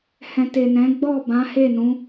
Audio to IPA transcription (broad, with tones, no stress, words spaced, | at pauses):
hɛ̃˨te˨nɛ̃˨˦ ɡ͡bɔ˦˨bã˨˦he˦˨nũ˨˦